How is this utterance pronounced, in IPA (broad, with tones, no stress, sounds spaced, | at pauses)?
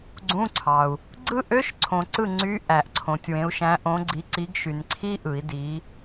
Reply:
ɡ͡ǀ ũ˧˥˧ ǀʰ ɑ˨ u̯ | ɡ͡ǀ ɯ˦˥ ʔ ø˧˥˧ ʃ ǀʰ õ˨ ǀ ɯ˥˨ ŋ͡ǀ y˧˥˧ ʔ æ˨˩˦ ʔ ǀʰ õ˨ tʲ w ẽ˨˦ u̯ ʃ æ̃˨˦ ʔ õ˨˦ ɡ͡ǀ i˨˦ ǀ i˨˦ ɡ ʃ y˨ n ǀʰ i˦˥ ʔ ɯ˨˩˦ i̯ d i˨˦